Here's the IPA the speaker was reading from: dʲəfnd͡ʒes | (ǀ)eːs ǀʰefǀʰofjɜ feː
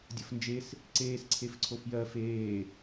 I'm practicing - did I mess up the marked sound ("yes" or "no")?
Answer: no